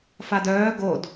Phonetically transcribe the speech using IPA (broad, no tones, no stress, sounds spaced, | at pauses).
f a d œː ɡ o d